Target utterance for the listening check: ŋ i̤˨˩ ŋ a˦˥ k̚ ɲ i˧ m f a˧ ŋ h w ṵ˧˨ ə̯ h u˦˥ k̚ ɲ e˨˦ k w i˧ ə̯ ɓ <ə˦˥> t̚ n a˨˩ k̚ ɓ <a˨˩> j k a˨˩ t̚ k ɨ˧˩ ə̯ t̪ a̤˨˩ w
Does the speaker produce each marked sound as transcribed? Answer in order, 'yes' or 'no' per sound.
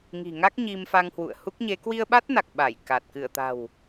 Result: no, no

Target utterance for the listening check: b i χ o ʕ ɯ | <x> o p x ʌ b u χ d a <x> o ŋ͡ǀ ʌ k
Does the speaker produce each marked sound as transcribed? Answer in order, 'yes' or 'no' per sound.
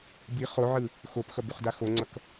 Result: yes, yes

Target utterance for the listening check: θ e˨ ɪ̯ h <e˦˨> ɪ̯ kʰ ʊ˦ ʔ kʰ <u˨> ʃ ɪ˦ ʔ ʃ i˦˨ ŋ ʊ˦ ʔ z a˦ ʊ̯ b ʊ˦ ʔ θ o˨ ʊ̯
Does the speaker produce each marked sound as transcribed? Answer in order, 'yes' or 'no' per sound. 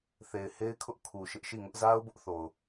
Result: no, yes

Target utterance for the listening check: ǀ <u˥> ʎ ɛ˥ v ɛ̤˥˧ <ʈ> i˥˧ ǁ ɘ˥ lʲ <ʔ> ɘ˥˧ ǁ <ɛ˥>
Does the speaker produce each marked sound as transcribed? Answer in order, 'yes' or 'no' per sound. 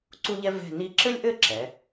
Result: yes, no, yes, no

